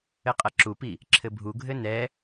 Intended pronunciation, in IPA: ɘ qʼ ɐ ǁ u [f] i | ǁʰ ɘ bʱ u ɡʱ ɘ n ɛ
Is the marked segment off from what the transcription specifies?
yes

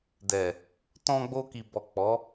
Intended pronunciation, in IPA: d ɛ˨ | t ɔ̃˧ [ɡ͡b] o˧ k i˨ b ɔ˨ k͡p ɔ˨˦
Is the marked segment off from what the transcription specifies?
no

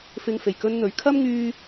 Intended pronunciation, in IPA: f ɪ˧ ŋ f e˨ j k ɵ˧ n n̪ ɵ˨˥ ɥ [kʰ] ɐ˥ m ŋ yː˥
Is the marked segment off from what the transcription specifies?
no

